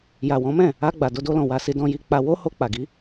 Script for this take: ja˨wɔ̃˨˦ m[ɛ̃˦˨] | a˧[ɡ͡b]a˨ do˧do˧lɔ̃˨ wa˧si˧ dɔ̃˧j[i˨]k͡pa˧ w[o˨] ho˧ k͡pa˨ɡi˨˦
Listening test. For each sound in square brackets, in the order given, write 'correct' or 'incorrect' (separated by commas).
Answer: correct, correct, incorrect, incorrect